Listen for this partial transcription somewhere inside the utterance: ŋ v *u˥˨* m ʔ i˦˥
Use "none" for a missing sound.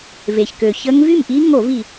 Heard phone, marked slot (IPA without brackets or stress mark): y˥˨